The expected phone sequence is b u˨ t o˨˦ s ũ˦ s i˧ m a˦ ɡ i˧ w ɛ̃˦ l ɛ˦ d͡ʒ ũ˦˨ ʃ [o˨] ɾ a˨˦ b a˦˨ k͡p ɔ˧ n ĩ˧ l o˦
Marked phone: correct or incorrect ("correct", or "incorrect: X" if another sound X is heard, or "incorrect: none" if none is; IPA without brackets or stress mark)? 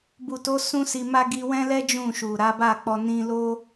incorrect: u˨